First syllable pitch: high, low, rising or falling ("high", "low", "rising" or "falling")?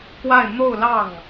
falling